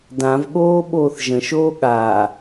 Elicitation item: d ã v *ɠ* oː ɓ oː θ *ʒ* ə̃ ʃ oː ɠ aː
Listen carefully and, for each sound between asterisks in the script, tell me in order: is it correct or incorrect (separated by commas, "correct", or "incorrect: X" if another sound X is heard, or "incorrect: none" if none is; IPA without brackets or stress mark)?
correct, correct